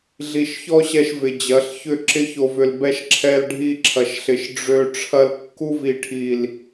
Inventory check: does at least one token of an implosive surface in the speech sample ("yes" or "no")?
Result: no